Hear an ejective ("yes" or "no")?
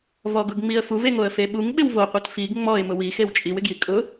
yes